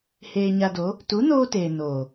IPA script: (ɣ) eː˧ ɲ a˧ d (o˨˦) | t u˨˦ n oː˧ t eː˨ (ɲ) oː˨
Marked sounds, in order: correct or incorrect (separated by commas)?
incorrect, correct, incorrect